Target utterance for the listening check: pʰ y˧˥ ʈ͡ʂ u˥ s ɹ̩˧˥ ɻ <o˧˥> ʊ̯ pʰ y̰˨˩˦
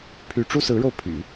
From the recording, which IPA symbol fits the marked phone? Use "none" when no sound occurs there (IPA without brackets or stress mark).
o˧